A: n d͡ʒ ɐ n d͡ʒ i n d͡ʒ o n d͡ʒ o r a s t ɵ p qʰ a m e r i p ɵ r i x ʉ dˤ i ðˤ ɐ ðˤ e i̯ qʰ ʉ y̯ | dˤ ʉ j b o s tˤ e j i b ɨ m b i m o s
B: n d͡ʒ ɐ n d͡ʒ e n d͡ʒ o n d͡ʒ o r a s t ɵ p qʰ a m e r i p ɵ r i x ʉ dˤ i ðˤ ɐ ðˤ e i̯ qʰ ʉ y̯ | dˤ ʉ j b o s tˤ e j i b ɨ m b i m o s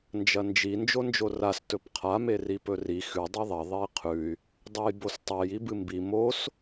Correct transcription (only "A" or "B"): A